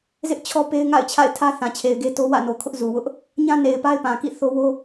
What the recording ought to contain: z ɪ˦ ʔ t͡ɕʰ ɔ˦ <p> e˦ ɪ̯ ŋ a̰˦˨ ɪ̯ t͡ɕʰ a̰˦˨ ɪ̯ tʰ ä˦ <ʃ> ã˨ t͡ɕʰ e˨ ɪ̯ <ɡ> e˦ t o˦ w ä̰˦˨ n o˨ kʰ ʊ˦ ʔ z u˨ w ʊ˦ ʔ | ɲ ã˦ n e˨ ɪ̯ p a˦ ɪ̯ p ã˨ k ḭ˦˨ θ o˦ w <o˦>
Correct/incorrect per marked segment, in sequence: correct, incorrect, correct, correct

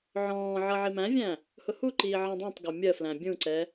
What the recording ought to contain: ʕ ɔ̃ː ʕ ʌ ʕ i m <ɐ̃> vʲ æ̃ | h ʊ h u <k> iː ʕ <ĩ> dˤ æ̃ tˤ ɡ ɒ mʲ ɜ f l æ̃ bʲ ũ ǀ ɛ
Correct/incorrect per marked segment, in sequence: incorrect, incorrect, correct

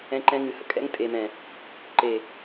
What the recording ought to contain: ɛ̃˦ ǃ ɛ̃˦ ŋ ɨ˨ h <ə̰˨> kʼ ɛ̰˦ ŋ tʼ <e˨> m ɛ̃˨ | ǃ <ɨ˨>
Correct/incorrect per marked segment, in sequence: correct, correct, incorrect

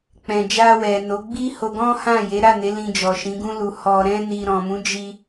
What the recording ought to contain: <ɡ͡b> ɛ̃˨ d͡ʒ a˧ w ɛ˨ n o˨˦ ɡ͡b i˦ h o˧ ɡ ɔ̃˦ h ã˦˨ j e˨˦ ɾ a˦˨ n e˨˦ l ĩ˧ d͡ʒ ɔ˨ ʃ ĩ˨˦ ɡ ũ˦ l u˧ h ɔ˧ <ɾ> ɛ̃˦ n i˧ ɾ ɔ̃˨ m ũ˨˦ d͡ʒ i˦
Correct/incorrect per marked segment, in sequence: incorrect, correct

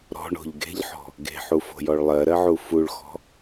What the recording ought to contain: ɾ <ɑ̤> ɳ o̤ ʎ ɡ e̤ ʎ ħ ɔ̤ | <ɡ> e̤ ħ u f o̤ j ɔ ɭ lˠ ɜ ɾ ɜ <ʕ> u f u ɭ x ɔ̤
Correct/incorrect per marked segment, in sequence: incorrect, correct, correct

